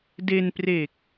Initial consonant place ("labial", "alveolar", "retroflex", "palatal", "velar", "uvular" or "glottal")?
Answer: alveolar